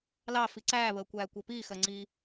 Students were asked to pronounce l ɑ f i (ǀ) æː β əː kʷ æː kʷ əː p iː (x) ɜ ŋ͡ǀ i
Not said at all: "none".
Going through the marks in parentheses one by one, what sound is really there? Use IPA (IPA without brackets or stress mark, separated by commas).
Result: ǀ, x